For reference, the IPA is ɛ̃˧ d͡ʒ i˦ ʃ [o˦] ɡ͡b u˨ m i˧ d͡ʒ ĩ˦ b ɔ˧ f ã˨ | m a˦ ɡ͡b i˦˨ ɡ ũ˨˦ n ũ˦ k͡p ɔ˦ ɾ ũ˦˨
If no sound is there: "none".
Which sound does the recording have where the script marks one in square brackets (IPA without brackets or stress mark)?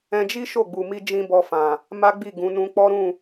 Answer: o˦˨